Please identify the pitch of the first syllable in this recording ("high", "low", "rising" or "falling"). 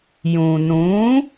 low